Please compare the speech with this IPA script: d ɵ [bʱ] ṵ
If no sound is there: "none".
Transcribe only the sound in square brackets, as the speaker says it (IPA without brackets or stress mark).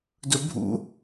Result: bʱ